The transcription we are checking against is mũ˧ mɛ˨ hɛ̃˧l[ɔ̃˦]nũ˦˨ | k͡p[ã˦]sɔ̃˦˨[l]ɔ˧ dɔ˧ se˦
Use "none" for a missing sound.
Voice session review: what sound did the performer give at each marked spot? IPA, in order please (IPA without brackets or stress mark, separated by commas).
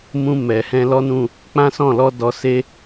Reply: ɔ˦, ã˦, l